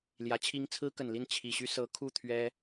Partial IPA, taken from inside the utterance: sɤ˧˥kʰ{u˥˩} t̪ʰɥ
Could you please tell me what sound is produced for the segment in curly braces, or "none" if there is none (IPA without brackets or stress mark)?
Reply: u˥˩